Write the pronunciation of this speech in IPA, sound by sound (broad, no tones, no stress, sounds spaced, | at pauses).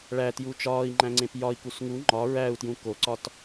ɭ æ t j u t͡ʃ ɒː i̯ ŋ͡ǃ æ̃ ŋ͡ǀ ẽ p j ɒ i̯ k u s ŋ u ŋ͡ǃ ɒ ɹ æ u̯ t j ũ k o ǀ ɒ t